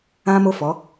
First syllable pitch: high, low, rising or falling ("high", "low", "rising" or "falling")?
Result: high